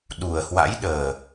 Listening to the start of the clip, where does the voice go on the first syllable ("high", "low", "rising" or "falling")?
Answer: low